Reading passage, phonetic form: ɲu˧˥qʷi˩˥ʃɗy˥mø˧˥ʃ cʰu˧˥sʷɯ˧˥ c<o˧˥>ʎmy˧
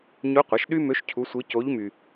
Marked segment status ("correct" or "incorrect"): correct